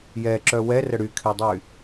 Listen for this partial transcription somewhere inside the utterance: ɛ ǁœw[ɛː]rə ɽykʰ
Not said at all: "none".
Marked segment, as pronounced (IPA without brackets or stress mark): ɛ